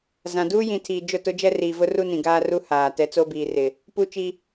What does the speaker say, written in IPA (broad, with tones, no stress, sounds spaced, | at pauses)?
z ã˨ d uː˦ j ĩ˨ tʰ iː˨ d͡ʒ ʊ˦˨ t ʊ˦ d͡ʒ ɛ˦ r iː˨ v ʊ˦ r u˦ n ĩ˨ ɡ aː˦ r u˦ h aː˨ t ɛ˦ t͡s o˦ b iː˨ r ɪ˨ | p u˦ t͡ʃ i˦